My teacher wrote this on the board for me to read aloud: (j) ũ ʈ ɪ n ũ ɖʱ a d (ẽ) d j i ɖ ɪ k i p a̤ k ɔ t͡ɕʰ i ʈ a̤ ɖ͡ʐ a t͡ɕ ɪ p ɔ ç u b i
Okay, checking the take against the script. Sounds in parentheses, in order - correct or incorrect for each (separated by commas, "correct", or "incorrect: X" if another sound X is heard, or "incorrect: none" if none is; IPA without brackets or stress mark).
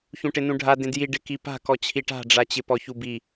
incorrect: ç, correct